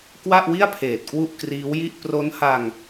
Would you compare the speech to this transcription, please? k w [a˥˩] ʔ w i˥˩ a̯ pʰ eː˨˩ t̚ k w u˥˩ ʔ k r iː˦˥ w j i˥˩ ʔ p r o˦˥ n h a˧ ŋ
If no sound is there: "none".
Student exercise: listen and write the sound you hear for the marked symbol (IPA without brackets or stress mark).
a˥˩